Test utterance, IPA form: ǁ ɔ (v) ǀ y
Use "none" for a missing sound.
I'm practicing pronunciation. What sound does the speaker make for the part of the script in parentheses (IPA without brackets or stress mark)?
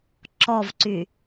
v